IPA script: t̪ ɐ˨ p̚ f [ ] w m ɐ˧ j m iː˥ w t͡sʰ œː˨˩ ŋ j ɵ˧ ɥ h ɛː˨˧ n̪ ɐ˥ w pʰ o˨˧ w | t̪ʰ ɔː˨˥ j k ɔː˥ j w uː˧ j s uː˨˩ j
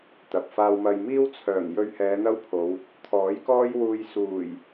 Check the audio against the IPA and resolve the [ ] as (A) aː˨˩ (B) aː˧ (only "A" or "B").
B